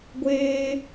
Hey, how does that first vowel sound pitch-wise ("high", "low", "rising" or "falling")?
high